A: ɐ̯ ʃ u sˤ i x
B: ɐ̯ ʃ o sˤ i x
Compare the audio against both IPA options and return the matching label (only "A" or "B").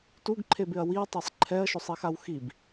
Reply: B